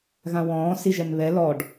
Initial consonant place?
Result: velar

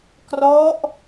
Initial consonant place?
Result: velar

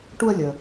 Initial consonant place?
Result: retroflex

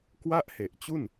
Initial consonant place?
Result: velar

